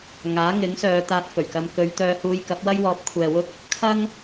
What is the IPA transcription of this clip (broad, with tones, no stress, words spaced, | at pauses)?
ŋaː˨˥ŋɪ˨˥ŋsœː˨˧ t̪aː˧t̚fɵ˨˩ɥkɐ˧m kɵ˨˧ɥt̪œː˧ huː˧jkɐ˨˥p̚ wɐ˥jwɔː˨˥p̚kʷʰɛː˨wʊ˥k̚ | kʰɐ˥ŋ